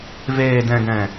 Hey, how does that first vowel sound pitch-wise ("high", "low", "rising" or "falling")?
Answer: low